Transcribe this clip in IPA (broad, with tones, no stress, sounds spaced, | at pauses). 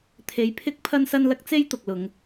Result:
t̪ʰ e˧ j pʰ ɪ˥ k̚ pʰ ɐ˥ n s ɐ˥ n l ɐ˥ k̚ t͡s e˥ j t̪ ʊ˨ k̚ l ʊ˨˧ ŋ